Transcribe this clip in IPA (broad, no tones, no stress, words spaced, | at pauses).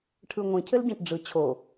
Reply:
ʈʰɯŋʷĩ cʰɘlɟɛ̃ʈɖ͡ʐɯ t͡ɕʰo